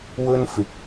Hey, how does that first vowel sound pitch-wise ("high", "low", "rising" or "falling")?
high